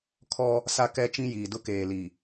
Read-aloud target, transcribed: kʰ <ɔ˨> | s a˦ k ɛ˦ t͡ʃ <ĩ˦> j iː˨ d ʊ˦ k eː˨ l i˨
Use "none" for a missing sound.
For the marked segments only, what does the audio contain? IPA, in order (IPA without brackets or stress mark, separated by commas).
ɔ˦, ĩ˦